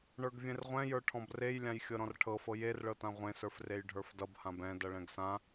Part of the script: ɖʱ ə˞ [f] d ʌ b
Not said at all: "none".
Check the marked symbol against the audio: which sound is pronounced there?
f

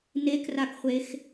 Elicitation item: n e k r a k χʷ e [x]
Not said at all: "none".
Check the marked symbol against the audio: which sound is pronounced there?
x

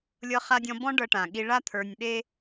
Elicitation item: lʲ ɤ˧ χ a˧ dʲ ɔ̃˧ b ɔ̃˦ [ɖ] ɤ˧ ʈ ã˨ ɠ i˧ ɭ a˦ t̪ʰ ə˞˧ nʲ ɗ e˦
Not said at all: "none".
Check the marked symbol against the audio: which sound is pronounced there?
ɖ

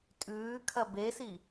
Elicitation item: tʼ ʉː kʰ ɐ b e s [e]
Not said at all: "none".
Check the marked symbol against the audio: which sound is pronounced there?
i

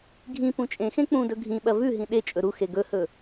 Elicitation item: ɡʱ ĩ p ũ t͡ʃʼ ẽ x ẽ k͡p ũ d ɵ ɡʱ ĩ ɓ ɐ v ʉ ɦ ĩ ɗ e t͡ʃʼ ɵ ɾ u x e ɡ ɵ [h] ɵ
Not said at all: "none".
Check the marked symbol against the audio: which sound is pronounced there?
h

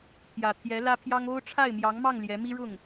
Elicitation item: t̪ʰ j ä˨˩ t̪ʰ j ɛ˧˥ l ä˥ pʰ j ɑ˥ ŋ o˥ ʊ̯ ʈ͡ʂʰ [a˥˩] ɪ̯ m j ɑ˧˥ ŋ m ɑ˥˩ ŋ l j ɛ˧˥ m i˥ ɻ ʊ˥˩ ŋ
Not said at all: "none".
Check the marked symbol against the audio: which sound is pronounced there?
a˥˩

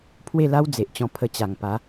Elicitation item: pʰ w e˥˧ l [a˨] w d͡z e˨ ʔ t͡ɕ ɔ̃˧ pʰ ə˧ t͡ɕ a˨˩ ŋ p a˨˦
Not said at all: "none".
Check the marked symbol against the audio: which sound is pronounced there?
a˦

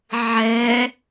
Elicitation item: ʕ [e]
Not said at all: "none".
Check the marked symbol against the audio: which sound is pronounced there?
ɛ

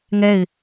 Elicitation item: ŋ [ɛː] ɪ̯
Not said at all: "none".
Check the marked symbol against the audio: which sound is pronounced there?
ɛ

